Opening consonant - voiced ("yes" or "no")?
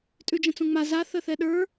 no